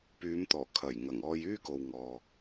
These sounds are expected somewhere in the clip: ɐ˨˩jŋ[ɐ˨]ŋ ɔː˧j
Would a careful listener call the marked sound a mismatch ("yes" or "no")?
yes